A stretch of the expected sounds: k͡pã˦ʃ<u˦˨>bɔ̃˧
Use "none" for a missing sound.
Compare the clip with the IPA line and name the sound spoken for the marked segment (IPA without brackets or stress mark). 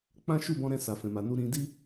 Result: u˦˨